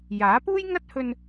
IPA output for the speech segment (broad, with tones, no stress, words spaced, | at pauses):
jaː˨˥puː˥j ŋɐ˥t̚ hɵ˧n